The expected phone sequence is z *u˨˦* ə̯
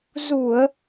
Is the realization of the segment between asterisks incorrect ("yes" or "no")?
yes